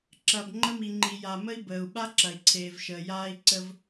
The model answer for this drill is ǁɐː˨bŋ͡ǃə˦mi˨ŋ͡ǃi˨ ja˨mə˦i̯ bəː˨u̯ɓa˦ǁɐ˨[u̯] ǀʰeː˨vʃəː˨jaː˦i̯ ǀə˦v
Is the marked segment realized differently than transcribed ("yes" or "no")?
yes